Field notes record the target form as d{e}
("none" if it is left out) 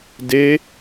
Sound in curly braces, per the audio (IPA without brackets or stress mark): e